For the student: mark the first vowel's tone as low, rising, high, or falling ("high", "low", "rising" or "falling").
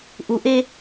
low